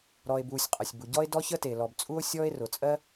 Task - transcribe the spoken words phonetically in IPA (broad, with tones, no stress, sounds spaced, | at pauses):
ɾ ɔ˩ e̯ b uː˩ sʲ qʼ ə˩ sʲ b u˩ ɟ ɔ˥ e̯ d ɔ˥ ç ə˥ t e˩ l ɔ˩ b t͡sʼ u˥ o̯ sʲ ɔː˥ e̯ r ʊ˩ t͡sʼ ɜ˥